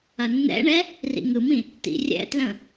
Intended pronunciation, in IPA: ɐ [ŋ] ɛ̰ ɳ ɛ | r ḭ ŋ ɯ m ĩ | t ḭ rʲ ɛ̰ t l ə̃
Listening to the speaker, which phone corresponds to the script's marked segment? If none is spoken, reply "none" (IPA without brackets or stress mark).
nː